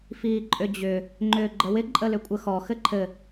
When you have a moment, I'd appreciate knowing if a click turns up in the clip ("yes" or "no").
yes